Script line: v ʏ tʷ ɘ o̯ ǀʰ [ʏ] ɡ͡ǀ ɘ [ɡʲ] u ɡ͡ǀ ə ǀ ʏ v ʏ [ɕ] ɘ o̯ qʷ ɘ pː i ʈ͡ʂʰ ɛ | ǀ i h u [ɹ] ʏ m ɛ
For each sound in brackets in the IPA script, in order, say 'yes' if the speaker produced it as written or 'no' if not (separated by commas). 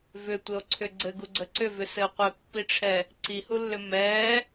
yes, no, no, no